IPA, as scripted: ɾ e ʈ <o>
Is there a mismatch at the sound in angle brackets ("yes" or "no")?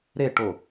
no